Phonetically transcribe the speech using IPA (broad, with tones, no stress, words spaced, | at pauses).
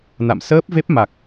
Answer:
na̰˧˨msəː˦˥p̚ve˦˥p̚ ma˨˩k̚